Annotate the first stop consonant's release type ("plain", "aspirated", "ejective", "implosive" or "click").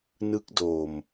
plain